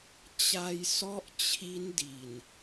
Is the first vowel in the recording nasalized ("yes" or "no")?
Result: no